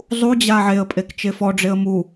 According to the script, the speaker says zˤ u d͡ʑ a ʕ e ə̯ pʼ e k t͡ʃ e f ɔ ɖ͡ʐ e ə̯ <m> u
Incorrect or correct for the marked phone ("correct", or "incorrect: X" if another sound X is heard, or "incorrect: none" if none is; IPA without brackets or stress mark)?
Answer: correct